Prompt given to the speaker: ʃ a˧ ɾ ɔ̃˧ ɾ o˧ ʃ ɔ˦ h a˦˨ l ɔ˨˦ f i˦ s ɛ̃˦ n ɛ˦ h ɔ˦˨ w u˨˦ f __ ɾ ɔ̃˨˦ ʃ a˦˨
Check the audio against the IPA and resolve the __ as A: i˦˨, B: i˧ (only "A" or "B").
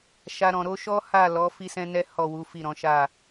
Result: A